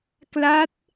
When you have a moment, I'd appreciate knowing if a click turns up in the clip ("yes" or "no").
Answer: no